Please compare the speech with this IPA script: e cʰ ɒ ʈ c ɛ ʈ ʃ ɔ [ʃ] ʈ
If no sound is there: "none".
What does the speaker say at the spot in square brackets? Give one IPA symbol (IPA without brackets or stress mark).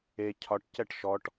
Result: none